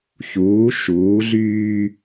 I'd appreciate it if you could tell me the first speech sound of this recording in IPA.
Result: ç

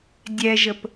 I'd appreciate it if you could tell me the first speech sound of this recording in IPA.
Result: dʲ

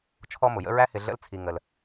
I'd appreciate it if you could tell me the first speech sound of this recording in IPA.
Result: t͡ʃʰ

